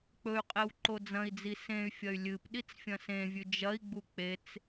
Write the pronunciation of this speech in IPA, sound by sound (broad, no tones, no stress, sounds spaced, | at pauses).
k͡p ɵ y̯ qʼ e w ǃ o d͡z ɐ̃ i̯ d͡z i s ẽ y̯ fʲ ɐ y̯ lʲ ɨ p ɗ i t͡s fʲ ɐ̃ s ẽ vʲ ʉ d͡ʒ ɐ i̯ ɡ͡b u k͡p e t͡s